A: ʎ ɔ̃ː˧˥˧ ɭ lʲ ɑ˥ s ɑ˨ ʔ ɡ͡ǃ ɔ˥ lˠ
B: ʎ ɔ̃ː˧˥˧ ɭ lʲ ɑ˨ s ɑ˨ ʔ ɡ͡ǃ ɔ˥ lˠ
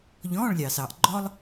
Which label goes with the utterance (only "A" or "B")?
B